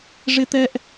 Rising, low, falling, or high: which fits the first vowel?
high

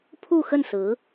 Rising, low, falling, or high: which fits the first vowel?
falling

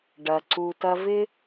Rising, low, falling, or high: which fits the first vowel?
low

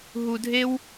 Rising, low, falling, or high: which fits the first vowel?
low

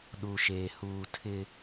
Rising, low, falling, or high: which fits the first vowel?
low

